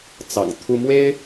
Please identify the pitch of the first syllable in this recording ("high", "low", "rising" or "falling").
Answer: low